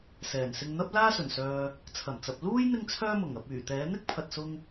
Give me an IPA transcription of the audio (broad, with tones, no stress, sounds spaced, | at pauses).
s ɛː˨˩ n s ɪ˧ ŋ n̪ ɐ˥ p̚ l aː˥ s ɵ˨˩ n s œː˨ | t͡sʰ ɐ˨˩ m t͡s ɐ˨ p̚ l uː˥ j n̪ ɪ˥ ŋ t͡sʰ œː˥ m ʊ˨˩ ŋ ɐ˨ p̚ yː˨˩ t̪ ɛː˨˥ n̪ ɪ˥ k̚ pʰ ɐ˨ t̚ s ʊ˧ ŋ